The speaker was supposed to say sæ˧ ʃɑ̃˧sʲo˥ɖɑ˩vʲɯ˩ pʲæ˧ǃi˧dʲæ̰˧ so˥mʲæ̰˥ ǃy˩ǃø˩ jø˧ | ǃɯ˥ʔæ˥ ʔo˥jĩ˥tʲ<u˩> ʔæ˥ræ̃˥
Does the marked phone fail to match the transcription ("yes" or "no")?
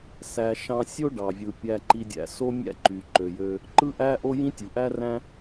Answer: no